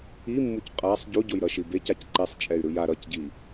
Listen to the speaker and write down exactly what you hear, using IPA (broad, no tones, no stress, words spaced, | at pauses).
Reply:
imːuc qʼasˤ ɟuɟojɾʌʃi becac ǃesˤt͡ʃʼɛy̯ ɾɯja ɾʌcɟi